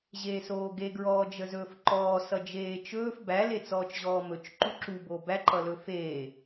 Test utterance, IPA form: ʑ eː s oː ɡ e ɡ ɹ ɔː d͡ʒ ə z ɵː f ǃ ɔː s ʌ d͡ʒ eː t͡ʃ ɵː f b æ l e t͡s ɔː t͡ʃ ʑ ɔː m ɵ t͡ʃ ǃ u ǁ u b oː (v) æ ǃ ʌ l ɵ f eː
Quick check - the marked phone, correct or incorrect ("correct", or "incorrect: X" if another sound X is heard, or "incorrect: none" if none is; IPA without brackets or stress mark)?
incorrect: b